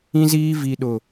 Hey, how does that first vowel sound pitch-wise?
high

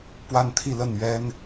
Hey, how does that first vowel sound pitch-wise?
falling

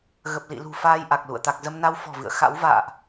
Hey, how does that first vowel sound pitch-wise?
low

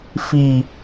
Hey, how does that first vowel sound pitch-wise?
low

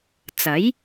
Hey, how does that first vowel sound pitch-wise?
rising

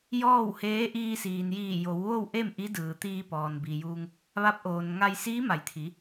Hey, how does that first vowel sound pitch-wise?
falling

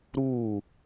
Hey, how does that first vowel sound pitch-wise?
falling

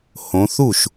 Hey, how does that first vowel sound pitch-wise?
rising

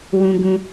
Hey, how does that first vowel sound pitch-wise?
high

